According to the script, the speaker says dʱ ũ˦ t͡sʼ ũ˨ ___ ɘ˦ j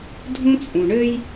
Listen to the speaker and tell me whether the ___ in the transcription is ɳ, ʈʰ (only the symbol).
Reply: ɳ